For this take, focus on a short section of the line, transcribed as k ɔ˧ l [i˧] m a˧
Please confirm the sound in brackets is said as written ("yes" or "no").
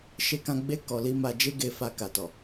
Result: no